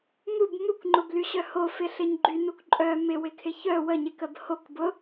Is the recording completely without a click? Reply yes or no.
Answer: no